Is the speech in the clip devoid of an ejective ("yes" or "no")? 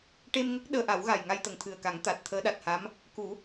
yes